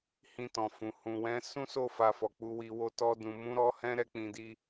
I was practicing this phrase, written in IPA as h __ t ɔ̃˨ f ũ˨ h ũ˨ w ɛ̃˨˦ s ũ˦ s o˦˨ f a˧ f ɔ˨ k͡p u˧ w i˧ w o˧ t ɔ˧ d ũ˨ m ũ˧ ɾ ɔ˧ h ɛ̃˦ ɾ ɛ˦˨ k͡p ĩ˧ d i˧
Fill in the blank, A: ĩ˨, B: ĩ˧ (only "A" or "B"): B